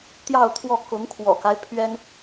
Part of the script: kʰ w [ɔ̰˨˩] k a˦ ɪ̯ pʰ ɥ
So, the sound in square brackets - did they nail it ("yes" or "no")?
yes